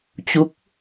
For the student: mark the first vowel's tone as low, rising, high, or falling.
rising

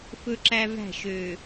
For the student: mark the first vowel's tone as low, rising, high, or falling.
high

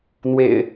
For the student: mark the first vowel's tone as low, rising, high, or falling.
low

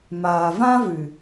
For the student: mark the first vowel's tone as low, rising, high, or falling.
low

